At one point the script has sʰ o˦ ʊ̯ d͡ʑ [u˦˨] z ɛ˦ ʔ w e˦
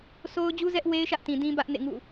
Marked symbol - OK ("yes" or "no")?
no